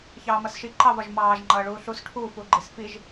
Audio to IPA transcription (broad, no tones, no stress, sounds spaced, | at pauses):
ç ɑː m ʌ s ʃ i ǃ ɑ v ɒ ʒ m ɑː ʒ ŋ͡ǃ ʌː ɭ uː ɬ u s ʈʰ u f u ɡ͡ǃ i s f i ʒ